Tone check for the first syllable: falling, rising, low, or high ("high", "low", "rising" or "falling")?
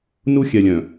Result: high